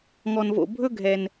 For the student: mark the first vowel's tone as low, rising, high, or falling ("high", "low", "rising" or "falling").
low